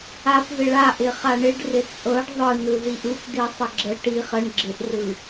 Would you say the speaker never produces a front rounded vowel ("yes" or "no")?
yes